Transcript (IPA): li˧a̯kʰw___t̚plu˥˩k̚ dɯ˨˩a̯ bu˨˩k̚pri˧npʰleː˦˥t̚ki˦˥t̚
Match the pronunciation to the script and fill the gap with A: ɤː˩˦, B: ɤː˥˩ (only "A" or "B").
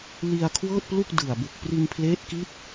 B